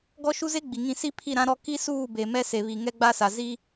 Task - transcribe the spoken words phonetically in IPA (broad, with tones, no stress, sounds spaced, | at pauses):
ɡ ɔ˦ ʃ u˦ z e˦ ɡ͡b i˨ ŋ ĩ˦˨ s i˦ pʰ i˦˨ ɾ ã˦ ɾ ɔ˦ k i˦ s uː˦˨ b e˨ m ɛ˦ s e˨ β i˨ ŋ ɛ˦ ɡ͡b a˦ s a˨ z i˦